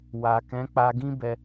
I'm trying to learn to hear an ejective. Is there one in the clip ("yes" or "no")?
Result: no